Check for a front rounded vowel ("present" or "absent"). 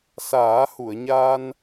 absent